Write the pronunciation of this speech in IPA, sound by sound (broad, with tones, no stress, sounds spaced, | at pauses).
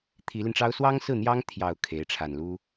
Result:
t̪ʰ i˧˥ l i˧ n ʈ͡ʂ ɑ˥ ʊ̯ s w ɑ˥ ŋ s ɹ̩˥˩ n̪ j ɑ˥ ŋ t̪ʰ j ɑ˨˩ ʊ̯ kʰ e˧˥ ɪ̯ ʈ͡ʂʰ a˨˩ n l u˥